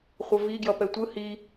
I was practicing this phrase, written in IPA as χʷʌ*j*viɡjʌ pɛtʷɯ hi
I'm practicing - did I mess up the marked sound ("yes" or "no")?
yes